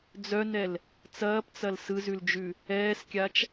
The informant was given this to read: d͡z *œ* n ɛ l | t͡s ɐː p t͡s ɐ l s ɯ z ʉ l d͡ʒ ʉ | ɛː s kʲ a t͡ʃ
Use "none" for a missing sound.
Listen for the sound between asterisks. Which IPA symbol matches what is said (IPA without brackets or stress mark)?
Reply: œ